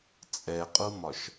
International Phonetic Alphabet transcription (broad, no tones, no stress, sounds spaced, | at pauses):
t͡sʼ ɛ qʼ u m ɒ ʃ